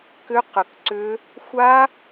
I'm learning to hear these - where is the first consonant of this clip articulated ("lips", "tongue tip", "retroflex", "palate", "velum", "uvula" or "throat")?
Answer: velum